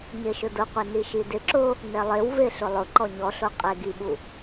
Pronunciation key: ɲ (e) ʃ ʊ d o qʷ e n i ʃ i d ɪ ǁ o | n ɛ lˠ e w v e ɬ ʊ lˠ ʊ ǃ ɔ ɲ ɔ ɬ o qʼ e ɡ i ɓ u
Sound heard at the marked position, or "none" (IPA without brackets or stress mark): e